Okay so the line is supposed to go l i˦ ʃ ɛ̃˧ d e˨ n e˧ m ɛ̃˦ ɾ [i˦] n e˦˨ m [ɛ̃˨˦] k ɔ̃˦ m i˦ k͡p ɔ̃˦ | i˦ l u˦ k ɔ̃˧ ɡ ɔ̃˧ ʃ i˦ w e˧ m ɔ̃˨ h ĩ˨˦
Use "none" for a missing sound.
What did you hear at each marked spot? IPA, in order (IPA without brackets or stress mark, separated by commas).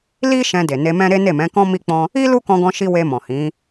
e˦, ɛ̃˨˦